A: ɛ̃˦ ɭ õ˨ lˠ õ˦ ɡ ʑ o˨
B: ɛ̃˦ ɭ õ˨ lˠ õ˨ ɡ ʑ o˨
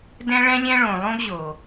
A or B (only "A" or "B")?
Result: A